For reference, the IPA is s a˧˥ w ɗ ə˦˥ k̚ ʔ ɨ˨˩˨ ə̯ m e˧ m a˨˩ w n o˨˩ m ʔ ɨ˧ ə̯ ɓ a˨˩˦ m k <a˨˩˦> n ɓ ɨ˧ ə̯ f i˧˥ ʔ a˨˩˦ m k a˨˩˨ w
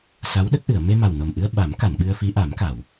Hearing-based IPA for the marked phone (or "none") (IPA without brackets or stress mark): a˨˩˨